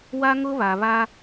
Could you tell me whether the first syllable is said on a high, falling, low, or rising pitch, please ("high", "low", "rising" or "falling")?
high